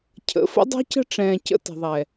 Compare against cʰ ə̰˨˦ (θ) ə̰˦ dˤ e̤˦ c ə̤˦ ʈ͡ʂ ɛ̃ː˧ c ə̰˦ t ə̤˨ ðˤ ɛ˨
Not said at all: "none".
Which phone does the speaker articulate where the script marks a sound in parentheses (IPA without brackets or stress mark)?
f